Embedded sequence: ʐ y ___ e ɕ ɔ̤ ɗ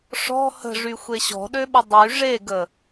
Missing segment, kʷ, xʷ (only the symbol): xʷ